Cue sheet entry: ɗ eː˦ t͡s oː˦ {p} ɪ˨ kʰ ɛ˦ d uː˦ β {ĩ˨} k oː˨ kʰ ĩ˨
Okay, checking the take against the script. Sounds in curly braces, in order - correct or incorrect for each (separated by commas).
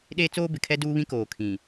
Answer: incorrect, incorrect